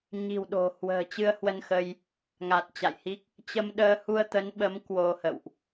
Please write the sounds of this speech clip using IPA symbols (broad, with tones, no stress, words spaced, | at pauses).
ɲi̤˨˩wɗo̤˨˩ hwə̤ː˨˩t͡ɕɨ˧ə̯hwə˧nxə˧j | ŋa˨˩t̚t͡ɕa̰˧˨jhi˦˥k̚ | t͡ɕə˧mɗəː˧ hu˧ə̯t̪ə˨˦nɓə˨˦m kwo˧hə̰˧˨wʔ